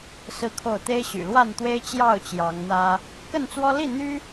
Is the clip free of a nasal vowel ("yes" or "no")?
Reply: yes